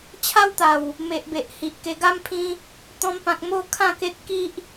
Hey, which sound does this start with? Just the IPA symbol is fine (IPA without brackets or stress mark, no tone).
t͡ɕʰ